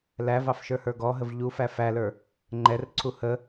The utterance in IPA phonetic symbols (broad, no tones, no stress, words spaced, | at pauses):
lævɑfʃə˞hə˞ ɡɔɦəv ʎufæ fælə˞ | ŋ͡ǃɛrǀʰu hə